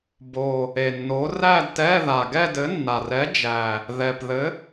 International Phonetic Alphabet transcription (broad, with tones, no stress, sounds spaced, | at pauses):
b o˨˩ | e˨˩ nː o˨˥ r æ˥˧ d t ɛ˧˥˧ ð a˨˩ ɡ ɛ˥˧ d ɘ˨˥ nː a˨˩ r ɛ˨˥ d͡ʒ æ˨˩ | ð ɛ˨˩ p ð ɘ˨˥